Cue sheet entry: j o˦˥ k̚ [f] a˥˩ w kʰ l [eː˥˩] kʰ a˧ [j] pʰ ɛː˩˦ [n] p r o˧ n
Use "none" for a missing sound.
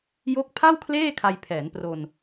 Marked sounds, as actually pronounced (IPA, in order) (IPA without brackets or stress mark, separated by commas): pʰ, eː˥˩, j, n